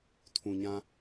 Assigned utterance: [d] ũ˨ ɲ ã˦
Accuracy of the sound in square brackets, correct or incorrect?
incorrect: tʰ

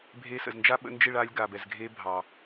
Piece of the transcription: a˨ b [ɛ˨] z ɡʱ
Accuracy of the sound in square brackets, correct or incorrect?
correct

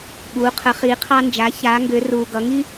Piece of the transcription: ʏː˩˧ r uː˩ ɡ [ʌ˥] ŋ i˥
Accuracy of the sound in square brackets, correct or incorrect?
incorrect: ʌ˩˧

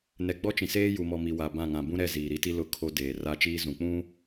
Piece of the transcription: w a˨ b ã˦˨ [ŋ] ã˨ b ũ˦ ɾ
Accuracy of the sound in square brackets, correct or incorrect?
correct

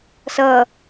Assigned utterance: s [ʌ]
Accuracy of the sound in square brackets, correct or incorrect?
correct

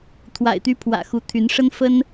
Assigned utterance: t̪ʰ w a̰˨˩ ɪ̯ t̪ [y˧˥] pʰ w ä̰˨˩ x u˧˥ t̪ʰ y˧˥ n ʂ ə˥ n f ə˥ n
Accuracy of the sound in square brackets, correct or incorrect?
correct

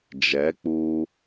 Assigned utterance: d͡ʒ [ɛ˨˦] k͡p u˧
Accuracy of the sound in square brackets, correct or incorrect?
correct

